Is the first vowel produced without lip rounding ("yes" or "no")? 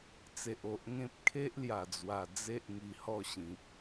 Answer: yes